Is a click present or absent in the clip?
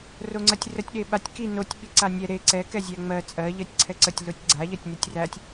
present